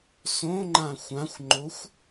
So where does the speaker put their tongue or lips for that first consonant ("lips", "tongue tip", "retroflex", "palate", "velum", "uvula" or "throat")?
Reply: tongue tip